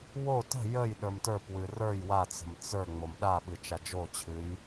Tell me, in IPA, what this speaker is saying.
wo tə̤ jəj ɗə˞mtə˞pwɨ rə˞j wat͡sə̤m t͡sə˞ ŋ͡momɗaɓɨ t͡ʃad͡ʒot͡ɕʰɨj

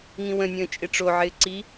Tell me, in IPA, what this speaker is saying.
ŋĩwə̃nʲə̃ː t͡ʃʼɪʈ͡ʂoʕɪː ǀi

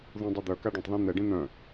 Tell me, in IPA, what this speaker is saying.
ðũdˤɐ d̪œ kaɖɐ̃tˤðœ̃ n̪ɛɖĩ n̪œ̃

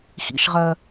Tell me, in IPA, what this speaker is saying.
xḭʃʁɜ

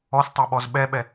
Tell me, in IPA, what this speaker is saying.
ɔstˤɛɓɔz ɓɛɓɛ

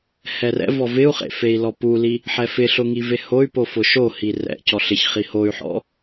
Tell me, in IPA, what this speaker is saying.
hɛrɛ̰vɔ vɪu̯χḛ fei̯lɔpuli | ħɛfɪɬʊ ŋivehoy̯po fʊʃohi rɛ̰ cɔɬɪçχi hoy̯ħɔ̰

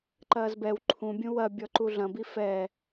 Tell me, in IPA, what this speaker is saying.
ǃɐːzbɛw ǃʰũbʲũ wɐ bʲɔǃuɮɐ̃bi fɛ

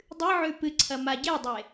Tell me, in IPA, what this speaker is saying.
dˤɨʕʉ pɨǀʰɐ maɟedˤe

